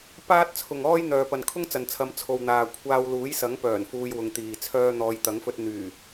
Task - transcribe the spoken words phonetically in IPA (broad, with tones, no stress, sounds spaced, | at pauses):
p aː˥ t̚ t͡sʰ ʊ˨ ŋ ɔː˥ j n̪ œː˨ p ɐ˨ n kʰ ʊ˥ ŋ t͡s ɐ˨ n t͡sʰ ɐ˨˧ m t͡sʰ o˨ w n̪ aː˨ kʷʰ aː˧ w l uː˨˥ j s ɐ˨˥ ŋ p œː˨˩ n f uː˧ j w ʊ˨ ŋ t̪ iː˨ t͡sʰ œː˥ n̪ ɔː˧ j t̪ ɐ˨˥ ŋ f ɵ˧ t̚ n̪ yː˨˩